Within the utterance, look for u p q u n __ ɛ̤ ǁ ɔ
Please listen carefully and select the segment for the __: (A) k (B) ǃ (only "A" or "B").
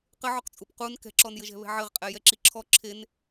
A